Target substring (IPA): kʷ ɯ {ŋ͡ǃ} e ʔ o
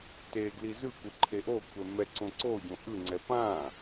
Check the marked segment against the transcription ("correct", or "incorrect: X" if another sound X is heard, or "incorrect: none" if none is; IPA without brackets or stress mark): incorrect: ǃʰ